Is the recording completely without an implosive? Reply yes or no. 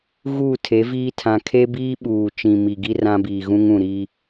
no